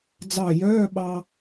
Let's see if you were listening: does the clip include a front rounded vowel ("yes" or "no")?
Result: yes